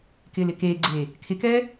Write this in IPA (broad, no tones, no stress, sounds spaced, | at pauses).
k ɪː l ɪ k eː ɡ͡ǀ eː | kʰ ɪ k ɛː